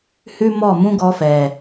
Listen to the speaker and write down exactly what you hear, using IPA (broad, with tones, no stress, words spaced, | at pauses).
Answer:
hʉ˦mɔ˦˨mũ˦ɡɔ˧ fɛ˨